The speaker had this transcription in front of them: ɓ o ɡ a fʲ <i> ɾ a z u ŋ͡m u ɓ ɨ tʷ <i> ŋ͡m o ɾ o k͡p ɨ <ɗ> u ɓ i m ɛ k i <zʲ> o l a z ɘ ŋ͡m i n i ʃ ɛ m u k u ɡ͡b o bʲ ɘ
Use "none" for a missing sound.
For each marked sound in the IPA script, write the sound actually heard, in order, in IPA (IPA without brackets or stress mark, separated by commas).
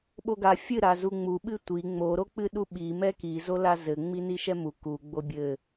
ɨ, i, ɗ, z